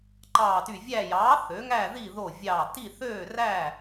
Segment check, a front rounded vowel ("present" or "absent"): present